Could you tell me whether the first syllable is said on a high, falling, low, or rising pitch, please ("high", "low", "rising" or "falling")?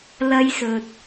high